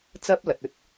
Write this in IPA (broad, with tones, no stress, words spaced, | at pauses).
t͡sɐ˥p̚lɐ˨t̚ ɵ˧t̚